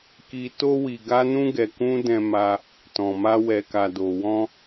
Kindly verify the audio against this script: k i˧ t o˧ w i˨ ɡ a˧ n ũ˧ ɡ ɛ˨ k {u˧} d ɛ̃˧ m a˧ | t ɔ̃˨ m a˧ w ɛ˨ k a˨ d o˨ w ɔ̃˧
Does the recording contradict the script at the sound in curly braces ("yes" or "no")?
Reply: yes